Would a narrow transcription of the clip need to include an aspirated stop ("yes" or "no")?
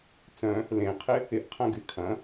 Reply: yes